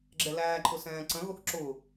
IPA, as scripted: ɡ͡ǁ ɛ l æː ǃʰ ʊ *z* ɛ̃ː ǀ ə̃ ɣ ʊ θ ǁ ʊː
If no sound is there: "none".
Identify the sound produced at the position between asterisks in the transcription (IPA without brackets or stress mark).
s